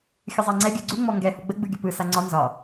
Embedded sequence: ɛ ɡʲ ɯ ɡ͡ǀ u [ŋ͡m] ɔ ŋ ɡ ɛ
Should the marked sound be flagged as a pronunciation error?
no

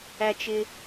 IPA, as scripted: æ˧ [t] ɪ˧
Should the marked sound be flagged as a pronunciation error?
yes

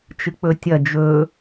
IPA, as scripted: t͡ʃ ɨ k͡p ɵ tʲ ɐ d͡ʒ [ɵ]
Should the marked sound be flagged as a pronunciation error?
no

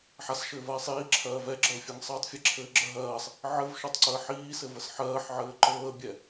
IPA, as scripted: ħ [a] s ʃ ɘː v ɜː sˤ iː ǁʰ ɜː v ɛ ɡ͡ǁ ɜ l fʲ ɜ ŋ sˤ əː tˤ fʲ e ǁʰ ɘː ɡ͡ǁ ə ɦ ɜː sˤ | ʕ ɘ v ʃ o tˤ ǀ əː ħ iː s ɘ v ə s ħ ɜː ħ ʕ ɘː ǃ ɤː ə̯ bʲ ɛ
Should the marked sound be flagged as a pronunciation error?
no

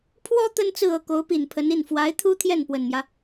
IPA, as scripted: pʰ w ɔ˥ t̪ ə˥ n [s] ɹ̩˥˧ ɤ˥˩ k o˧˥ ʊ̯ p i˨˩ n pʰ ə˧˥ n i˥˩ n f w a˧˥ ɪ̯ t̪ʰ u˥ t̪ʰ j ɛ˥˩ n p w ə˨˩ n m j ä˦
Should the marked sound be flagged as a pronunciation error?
yes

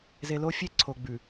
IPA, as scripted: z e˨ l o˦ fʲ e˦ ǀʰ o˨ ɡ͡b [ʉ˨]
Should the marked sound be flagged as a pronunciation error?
no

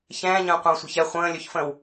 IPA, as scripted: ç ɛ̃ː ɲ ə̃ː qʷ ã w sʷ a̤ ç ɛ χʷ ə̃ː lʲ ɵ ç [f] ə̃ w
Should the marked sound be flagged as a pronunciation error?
no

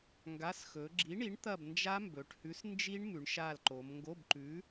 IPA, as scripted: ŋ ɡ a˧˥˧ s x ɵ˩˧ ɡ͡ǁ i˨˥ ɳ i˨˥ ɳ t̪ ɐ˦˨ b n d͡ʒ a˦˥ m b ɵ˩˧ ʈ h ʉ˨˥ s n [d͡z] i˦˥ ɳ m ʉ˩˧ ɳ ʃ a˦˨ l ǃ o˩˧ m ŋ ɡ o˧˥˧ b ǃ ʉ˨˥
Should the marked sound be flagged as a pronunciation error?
yes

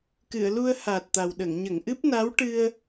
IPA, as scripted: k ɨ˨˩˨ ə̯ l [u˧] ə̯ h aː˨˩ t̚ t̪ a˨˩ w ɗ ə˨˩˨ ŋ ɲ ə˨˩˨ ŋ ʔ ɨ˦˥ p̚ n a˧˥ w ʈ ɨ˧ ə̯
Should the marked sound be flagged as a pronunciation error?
no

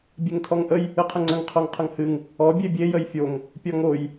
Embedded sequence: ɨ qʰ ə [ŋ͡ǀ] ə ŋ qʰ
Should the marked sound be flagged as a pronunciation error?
no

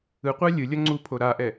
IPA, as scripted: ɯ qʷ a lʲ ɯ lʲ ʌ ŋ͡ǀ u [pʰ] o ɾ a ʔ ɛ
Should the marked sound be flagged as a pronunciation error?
no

